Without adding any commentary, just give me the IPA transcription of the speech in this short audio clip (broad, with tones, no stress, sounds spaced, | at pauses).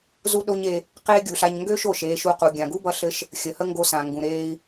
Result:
z u˥ ɗ o˥ ɲ e˧ | q eː˥ ɡʲ u˩ ɬ a˧ ɲ ŋ ɡ ø˥ ʃ o˩ ʃ eː˧ ʃ u˧ q u˩ ɡʲ ã˩ ɡ u˥ b ʌ˧ ɬ ɘ˧ ʃ | xʲ ə˩ h ə˥ ŋ ɡ o˧ s ã˩ ŋ ɡ ũ˩ ɾ eː˧ i̯